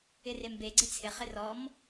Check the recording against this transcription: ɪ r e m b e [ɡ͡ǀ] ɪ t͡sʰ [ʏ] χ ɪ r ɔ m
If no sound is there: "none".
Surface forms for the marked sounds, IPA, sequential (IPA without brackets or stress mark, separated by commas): ɡ͡ǀ, ɪ